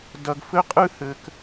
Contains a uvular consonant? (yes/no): yes